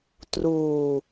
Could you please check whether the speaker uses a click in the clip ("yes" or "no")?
no